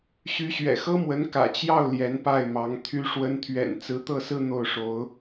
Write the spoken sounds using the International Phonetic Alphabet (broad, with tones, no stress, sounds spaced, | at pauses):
ɕ y˧˥ ɕ ɥ ɛ̰˨˩ x ɤ˥ m w ə˧˥ n k ä̰˨˩ t͡ɕ j ɑ˥˩ ʊ̯ l j ɛ˧˥ n p a˥˩ ɪ̯ m ɑ˧˥ ŋ t̪ʰ y˧˥ ʂ w ə˧˥ n t̪ʰ ɥ ɛ̰˨˩ n t͡s ɹ̩˧˥ t̪ ɤ˥˧ s ɹ̩˥˧ n̪ o˥˩ ʊ̯ ʂ o˧˥ ʊ̯